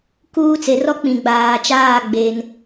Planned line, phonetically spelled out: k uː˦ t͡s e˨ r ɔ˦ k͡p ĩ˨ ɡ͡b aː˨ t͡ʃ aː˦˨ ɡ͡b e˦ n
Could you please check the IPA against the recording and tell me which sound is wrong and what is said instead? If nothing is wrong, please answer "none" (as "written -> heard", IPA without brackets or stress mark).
none